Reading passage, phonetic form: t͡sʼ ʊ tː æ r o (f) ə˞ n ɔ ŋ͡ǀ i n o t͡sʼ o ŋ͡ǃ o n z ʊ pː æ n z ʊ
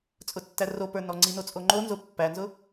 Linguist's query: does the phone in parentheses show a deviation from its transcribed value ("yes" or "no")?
yes